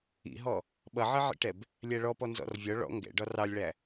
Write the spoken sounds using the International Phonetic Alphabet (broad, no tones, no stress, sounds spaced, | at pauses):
ḭ ɦ ɔ | ɓ ʌ ʕ ɜ ʕ ḭ ʈ ɛ b | lʲ æ ɭ ɔ p ɔ n z ɔ̰ r vʲ ɒ ɭ ɔ̰ ŋ ɡ ɛ̰ ɖ ɒ r ɑ lʲ ɭ æ